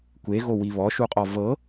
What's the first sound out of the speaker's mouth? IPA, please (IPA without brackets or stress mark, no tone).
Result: kʷ